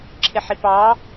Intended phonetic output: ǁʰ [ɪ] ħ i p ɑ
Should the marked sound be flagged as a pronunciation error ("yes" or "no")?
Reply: no